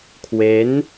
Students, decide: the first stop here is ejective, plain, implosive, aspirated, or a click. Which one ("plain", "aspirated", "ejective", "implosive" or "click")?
aspirated